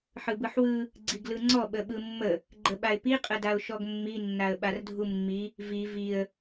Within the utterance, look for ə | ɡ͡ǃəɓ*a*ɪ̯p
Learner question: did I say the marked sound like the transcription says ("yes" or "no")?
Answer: yes